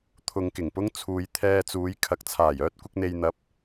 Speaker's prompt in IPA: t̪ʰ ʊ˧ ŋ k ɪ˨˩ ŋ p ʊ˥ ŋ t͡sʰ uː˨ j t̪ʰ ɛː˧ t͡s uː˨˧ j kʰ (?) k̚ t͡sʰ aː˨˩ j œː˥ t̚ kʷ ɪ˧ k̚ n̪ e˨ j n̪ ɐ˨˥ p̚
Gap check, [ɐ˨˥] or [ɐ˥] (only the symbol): ɐ˨˥